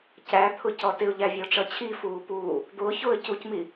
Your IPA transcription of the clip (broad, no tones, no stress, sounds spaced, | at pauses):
c æ t̪ʰ ʊ c ɔ t ɪ ʊ̯ ʎ æ vʲ ɔ ʈ͡ʂ ʌ t͡ɕʰ i f uː p uː | d̪ ʊː ç ʊː ə̯ c u c m i